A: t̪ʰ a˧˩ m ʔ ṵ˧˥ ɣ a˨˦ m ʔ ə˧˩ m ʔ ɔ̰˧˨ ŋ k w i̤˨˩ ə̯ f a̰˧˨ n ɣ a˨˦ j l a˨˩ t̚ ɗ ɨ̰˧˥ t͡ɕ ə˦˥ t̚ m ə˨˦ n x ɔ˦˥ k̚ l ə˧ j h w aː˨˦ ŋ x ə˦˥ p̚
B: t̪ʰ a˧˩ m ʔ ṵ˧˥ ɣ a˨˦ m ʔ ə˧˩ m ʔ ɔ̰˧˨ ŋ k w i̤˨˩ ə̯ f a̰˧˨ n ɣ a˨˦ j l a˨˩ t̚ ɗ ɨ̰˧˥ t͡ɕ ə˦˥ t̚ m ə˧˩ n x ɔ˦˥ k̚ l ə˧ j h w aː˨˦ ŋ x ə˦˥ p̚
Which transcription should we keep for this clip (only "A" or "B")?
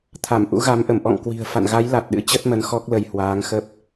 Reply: A